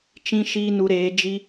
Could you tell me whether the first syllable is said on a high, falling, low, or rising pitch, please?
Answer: high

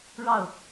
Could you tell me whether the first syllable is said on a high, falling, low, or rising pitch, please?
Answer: falling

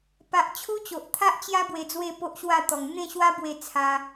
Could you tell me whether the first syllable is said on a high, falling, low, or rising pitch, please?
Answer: low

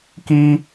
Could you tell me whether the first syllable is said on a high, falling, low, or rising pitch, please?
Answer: low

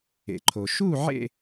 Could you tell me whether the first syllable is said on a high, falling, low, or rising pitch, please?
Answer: low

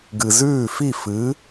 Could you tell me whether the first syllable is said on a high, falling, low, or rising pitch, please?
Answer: low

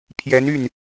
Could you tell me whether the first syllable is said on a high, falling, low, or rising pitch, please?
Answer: rising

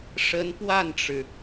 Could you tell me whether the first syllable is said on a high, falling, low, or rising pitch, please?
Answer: rising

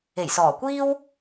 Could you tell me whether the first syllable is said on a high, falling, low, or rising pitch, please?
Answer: low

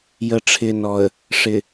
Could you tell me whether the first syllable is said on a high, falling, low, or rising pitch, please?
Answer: low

